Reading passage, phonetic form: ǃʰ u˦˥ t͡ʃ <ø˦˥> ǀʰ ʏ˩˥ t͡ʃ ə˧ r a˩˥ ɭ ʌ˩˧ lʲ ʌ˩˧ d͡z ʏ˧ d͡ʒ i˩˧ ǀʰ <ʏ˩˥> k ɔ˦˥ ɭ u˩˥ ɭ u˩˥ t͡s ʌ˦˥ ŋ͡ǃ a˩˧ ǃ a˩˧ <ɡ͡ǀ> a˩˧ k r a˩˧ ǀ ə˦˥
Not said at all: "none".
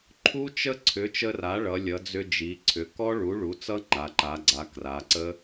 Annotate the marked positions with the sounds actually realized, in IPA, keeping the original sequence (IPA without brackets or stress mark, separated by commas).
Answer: ə˦˥, ʏ˩˧, ɡ͡ǀ